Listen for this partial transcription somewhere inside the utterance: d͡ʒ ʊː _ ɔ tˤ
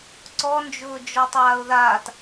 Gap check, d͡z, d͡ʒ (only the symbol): d͡ʒ